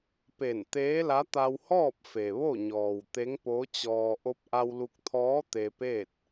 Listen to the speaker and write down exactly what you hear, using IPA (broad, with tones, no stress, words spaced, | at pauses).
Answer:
pe˧˩n t̪eː˧˥la˧˥ t̪a˧whɔː˥˨p̚ fe˩ʋo˥˨ɲɔː˩w t̪e˧˥ŋpo˧˥t͡ɕɔː˧ ʔo˧p̚ʔa˧w lu˧k̚t̪ʰɔː˧˥ t̪e˧peː˥˨t̚